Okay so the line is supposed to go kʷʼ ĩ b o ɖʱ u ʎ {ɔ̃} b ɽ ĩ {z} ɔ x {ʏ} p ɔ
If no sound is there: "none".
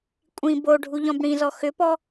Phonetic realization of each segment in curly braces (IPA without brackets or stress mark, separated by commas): ɔ̃, z, ʏ